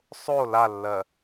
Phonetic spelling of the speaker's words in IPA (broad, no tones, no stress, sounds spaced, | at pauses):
sˤ o l a lː ɜ